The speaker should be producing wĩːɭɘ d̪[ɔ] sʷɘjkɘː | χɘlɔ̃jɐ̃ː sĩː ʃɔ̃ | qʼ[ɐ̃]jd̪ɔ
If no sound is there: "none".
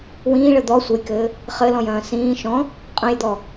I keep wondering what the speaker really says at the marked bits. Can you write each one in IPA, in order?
ɔ, ɐ̃

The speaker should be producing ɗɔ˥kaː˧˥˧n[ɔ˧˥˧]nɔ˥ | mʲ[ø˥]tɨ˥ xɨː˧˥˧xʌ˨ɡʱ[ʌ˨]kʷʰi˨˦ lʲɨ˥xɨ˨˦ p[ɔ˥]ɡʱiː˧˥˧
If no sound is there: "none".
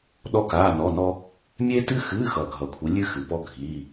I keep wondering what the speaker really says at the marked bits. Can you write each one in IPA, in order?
ɔ˧˥˧, e˥, ʌ˨, ɔ˥

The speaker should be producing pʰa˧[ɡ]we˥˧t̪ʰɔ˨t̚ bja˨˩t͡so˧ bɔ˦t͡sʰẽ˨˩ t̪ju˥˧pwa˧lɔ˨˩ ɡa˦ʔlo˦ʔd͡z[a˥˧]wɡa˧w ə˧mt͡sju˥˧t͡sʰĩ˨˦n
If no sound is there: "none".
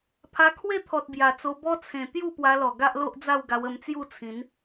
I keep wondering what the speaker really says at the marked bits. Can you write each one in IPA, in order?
kʰ, a˥˧

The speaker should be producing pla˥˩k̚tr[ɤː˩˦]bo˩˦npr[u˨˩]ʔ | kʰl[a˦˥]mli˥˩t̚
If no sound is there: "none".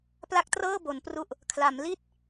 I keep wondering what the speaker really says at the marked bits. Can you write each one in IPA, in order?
ɤː˥˩, u˨˩, a˩˦

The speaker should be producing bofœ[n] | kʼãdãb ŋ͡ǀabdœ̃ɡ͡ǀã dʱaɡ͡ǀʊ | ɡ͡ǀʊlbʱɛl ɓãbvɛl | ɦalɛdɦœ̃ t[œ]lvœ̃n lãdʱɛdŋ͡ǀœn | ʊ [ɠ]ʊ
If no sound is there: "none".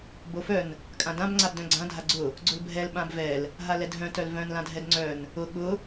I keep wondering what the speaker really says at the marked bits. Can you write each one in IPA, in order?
n, œ, ɠ

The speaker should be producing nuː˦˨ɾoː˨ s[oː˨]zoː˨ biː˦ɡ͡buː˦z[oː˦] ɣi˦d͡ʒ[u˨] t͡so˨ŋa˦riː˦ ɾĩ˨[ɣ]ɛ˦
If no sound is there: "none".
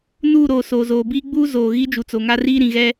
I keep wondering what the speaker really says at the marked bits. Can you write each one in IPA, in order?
oː˨, oː˨, u˨, ɣ

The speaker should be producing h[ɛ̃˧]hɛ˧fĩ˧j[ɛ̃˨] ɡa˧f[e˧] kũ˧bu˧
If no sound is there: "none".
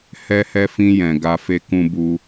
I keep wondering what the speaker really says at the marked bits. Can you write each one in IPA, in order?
ɛ˧, ɛ̃˨, e˦

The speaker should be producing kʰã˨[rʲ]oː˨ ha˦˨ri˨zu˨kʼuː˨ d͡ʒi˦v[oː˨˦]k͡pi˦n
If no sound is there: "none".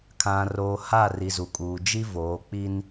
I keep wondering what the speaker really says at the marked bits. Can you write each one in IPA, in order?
r, oː˨˦

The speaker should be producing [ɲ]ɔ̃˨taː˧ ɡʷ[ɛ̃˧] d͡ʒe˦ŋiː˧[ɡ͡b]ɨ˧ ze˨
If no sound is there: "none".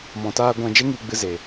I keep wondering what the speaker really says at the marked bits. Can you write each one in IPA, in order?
m, ɛ̃˧, ɡ͡b

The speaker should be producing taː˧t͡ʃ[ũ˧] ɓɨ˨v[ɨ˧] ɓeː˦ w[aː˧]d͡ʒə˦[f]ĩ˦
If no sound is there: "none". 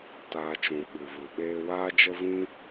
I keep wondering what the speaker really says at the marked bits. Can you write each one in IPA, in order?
ũ˨, ɨ˨, aː˦, v

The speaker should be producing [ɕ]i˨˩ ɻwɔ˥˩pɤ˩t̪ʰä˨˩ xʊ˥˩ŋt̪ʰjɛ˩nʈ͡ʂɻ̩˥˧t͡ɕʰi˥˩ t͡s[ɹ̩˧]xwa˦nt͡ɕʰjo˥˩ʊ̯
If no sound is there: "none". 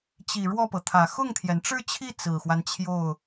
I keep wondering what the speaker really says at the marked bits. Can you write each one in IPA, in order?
t͡ɕ, ɹ̩˨˩

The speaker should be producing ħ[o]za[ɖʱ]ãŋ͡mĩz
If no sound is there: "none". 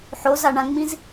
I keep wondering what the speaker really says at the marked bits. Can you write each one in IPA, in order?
o, ɳ

